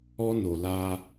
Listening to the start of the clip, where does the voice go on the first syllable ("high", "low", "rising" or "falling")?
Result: high